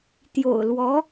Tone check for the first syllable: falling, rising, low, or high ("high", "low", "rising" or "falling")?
low